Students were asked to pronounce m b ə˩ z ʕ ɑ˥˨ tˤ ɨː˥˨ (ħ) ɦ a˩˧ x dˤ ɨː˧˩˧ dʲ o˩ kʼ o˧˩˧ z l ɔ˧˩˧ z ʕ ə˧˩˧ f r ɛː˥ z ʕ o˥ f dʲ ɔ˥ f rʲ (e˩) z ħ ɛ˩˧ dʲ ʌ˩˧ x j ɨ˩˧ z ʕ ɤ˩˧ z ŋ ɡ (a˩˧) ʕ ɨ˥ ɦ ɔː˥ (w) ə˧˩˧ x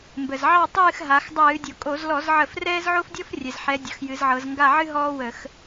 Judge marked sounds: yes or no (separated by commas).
no, no, no, yes